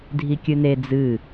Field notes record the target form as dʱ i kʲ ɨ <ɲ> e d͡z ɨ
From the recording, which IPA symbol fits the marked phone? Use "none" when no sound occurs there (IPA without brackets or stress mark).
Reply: n